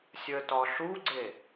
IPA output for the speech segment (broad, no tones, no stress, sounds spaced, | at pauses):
sʲ əː t ɒ ɬ u ɡ͡ǀ e